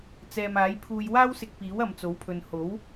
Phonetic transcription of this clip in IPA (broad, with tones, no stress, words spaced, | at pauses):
t͡sɛː˨maː˨˥jpʰuː˧j waː˥wsɪ˧k̚piː˨˥w ɐ˨mt͡so˨˥wpʰɵ˨n ho˨˥w